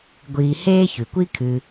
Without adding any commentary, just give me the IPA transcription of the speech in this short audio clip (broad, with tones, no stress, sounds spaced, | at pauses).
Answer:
ɡʷ iː˨ h eː˦ ç ʉ˩ kʷ i˥ kʰ ɨ˨